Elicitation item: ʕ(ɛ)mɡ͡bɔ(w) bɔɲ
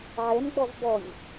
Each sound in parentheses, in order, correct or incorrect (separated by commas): correct, incorrect